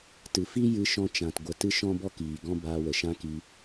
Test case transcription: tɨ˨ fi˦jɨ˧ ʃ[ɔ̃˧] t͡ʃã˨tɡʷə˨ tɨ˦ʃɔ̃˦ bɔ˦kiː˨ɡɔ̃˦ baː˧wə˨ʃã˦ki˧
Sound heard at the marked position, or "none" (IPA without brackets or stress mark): ɔ̃˧